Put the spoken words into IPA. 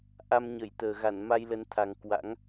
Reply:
ʔ a˧ m ɲ ə˧˩ j t̪ əː˨˩ ɣ a˧˩ n m a˧ j l ə˨˦ n t̪ʰ a˨˩ ŋ k w a̰˧˥ ŋ

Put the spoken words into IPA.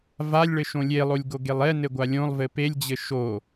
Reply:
v a lʲ ɭ ɘ ʃ õ lʲ e lˠ o lʲ ɡ o ɡ e lˠ ɛ n ɘ ɡʷ a lʲ õ lˠ v ɘ p e lʲ d͡ʑ ɘ ʃ o

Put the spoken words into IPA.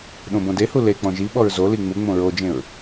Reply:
ɗ õ b õ d e h u l e k͡p ɔ̃ ʒ i ɓ ɔ ɹ z o l i ŋ͡m u ŋ͡m õ ɹ o d͡ʒ ẽ ɹ

